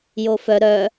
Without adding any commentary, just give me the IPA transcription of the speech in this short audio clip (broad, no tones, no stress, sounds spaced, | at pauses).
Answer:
j o f œ ɾ œ